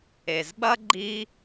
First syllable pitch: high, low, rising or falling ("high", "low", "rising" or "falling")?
low